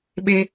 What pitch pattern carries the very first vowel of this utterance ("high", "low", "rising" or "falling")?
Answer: high